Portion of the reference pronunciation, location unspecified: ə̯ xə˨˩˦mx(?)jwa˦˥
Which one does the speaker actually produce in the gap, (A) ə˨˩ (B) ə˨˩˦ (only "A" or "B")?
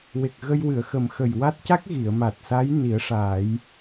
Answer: A